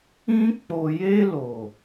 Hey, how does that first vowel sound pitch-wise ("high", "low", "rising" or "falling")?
high